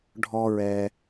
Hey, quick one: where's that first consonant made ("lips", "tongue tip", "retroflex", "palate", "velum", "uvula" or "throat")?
retroflex